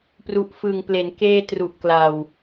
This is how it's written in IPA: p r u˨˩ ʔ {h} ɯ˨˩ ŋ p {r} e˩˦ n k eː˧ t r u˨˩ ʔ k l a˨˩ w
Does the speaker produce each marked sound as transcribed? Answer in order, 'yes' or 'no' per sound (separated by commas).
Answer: no, no